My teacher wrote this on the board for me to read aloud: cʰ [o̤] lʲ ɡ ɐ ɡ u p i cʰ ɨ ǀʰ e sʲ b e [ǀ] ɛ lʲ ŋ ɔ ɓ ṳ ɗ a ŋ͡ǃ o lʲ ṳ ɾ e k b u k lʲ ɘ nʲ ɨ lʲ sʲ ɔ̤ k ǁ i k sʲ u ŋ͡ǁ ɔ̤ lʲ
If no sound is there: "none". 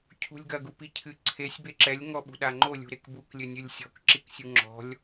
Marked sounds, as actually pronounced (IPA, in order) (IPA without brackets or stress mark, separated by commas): ṳ, ǁ